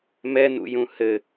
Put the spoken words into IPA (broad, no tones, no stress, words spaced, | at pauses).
mɛnṵjũ hɘ